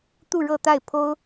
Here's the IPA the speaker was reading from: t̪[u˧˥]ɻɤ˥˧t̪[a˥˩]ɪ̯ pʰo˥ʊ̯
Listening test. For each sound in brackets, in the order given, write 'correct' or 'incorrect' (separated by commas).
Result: incorrect, correct